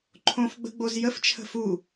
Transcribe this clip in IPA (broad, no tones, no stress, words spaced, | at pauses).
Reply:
ǃʰõfɡ͡bə̤ɡ͡boz jəft͡ʃʰə̤ fu